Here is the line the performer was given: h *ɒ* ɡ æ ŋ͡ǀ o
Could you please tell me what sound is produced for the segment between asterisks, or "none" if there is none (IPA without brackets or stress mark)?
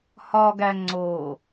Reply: ɒ